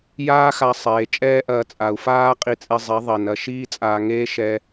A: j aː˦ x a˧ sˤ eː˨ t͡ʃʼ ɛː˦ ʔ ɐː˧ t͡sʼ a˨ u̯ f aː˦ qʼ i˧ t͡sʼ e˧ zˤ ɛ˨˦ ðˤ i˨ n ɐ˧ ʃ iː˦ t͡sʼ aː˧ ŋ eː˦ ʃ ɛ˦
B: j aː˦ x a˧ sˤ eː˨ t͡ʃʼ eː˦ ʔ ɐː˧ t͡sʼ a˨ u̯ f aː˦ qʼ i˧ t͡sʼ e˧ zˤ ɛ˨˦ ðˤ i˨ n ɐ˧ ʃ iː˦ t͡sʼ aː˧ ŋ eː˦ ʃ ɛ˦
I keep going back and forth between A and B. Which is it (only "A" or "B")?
A